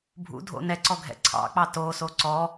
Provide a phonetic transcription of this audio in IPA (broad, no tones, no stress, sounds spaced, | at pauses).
bʱ ṵ dʱ o̰ n ɛ ǀ ɔ ɡʱ ɛ̰ ǀʰ ɑ̰ k͡p ɑ t o s o ǀ ɔ